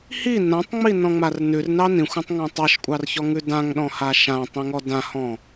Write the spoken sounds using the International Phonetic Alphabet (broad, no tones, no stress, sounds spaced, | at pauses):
h i n ã tˤ ŋ͡m i n ɔ̃ ŋ͡m a r n ʉ r n ɑ n ĩ xʷ ã tˤ ŋ œ̃ tˤ ɑ ʃ kʷʼ ɑ r ç ɔ ŋ ʉ d ã ŋ ɗ ɔ̃ h a ʃ ã tˤ ĩ ŋ ɔ d ã h ɔ̃